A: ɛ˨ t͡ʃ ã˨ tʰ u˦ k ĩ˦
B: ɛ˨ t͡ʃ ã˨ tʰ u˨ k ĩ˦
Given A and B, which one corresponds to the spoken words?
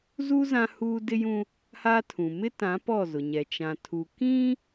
B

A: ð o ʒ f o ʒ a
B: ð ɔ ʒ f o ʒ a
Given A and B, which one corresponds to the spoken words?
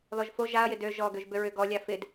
B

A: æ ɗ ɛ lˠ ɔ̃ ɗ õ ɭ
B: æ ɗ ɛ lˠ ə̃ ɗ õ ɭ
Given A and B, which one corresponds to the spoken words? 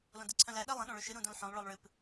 B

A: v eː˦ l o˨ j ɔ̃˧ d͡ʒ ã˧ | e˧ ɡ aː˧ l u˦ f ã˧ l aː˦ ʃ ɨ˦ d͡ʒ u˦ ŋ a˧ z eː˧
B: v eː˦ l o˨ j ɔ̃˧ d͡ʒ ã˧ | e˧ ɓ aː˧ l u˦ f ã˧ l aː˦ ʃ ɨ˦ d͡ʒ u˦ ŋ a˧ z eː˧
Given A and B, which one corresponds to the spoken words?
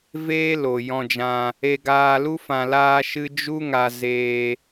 A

